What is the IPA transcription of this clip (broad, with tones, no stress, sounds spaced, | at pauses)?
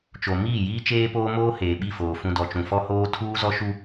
t͡ʃ o˨ m iː˦˨ j iː˦ t͡ʃ eː˦ p oː˦ m oː˦ h eː˨ ɓ i˦˨ f oː˨ f ũ˨ d ɔ˨ t͡ʃ ũ˨ f ɔ˦ h oː˦ tʰ uː˦ z ɔ˦ ʃ u˦